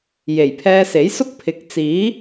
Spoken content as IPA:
j e˨˩ j pʰ ɛː˧ s e˨˥ j s ʊ˥ k̚ pʰ ɪ˨˥ k̚ t͡s iː˨˥

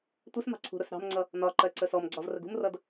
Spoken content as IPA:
tʷ i s m ɑ̤ ǀʰ ṳ ɾ ʊ s ɾ ɑ̤ m ŋ͡ǀ ʌ | n ɒ ǃ ɜ ǀ ə s ɔ m ɡ͡ǀ ɒ v r ə ɡ ṳ m r ʌ d

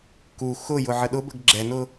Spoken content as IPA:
k u x ʊ j ʊ ʕ ə ɗ ʊ b ə ɡ ɡ͡ǁ ɛ n ʊ

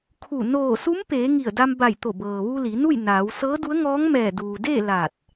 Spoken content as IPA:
kʰ u˧˩ n oː˧˩ s u˧˥ m p eː˩˧ ŋ i˧˩ ə̯ d a˧ m b a˧˩ j t̪ o˧˩ b ɤː˩ ʋ u˧ l i˩˧ n u˥˨ j n aː˩˧ w s ɤː˧˥ d u˧˥ ə̯ ŋ ɔː˧˥ ŋ m ɛː˧˩ d uː˩ d eː˥˨ l aː˧˩ t̚

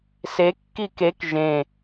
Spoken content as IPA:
s e kː i k e k ʒ ẽ

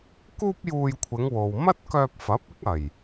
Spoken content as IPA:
k uː˥ p̚ j uː˧ j kʷʰ ɪ˨˧ ŋ w o˨ w m ɐ˥ t̚ k œː˧ p̚ f ɐ˨˥ p̚ ɪ˥ k̚ ɐ˨˩ j

